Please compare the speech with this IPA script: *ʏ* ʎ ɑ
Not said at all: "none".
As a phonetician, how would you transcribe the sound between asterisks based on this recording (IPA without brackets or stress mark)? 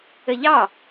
ə